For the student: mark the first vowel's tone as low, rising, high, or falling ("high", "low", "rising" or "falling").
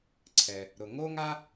low